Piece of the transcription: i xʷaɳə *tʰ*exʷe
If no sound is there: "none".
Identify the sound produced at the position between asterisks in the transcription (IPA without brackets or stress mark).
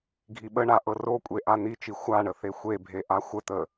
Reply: θ